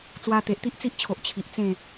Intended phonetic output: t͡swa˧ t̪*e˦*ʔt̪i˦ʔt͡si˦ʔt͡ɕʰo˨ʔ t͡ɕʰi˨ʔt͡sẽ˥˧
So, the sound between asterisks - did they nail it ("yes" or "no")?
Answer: no